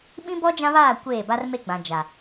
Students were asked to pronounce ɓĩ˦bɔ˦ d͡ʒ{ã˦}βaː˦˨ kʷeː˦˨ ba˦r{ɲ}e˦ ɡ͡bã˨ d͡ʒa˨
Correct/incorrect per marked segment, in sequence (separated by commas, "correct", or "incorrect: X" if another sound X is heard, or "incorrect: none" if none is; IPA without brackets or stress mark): correct, incorrect: m